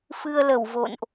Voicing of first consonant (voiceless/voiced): voiceless